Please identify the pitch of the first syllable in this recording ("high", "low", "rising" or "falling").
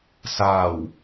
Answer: low